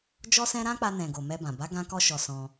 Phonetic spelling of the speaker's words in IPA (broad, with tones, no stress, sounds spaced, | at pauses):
d͡ʒ ɔ˦ s ɛ̃˦ ɾ ã˦ k͡p a˧ n ɛ̃˨ ɡ o˨ m ɛ˧ b ã˨ b a˨˦ ɡ ã˦ k ɔ˦ ʃ ɔ˧ s ɔ̃˧